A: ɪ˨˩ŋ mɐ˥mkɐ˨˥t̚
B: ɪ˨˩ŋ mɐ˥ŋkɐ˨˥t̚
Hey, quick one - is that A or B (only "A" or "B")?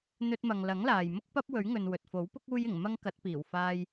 B